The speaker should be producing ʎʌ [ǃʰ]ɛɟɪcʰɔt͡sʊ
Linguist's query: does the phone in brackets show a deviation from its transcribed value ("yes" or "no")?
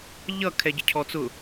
yes